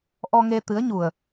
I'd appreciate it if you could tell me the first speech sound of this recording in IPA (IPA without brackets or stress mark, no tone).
ʔ